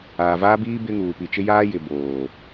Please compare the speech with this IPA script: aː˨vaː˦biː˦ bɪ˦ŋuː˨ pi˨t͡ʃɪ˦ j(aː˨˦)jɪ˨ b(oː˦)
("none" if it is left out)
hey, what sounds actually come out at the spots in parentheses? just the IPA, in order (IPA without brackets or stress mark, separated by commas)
aː˦, oː˨